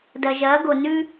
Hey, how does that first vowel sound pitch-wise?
low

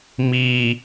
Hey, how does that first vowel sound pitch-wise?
low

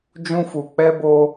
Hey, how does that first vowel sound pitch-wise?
high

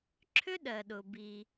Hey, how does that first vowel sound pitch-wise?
high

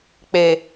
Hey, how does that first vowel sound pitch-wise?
low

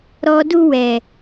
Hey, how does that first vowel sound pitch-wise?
low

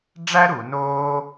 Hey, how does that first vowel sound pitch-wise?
high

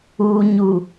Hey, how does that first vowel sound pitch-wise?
low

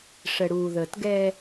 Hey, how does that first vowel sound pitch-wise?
low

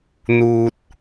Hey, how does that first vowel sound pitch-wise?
low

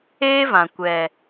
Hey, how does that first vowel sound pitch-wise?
high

